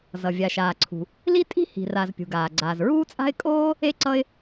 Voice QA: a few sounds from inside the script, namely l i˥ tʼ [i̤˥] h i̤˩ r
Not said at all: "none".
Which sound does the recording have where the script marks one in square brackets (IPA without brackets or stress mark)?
i̤˥